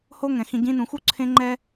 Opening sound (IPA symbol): h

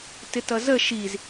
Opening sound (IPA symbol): t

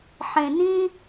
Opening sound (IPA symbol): ħ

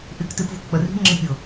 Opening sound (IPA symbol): ʔ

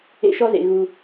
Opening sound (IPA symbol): ḛ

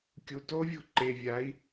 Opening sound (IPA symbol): kʲ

